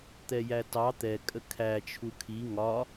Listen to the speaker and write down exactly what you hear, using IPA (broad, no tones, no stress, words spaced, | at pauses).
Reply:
t̪ɛjætɑ t̪ɛ kʼəkʰæ t͡ʃʰukʰi ŋɒ